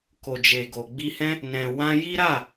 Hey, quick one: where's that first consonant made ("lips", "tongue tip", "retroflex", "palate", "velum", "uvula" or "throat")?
velum